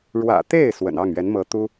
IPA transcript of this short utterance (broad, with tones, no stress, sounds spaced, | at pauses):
ɻ w ä̰˨˩ t̪ e˥˩ ɪ̯ s w ə̰˨˩ n ɑ˥˩ ŋ ɥ ɛ˧˥ n m ɤ˧˥ t̪ u˥